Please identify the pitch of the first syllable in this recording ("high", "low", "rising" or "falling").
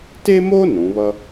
high